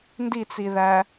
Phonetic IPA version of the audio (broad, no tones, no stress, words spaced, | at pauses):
ndit͡siðæ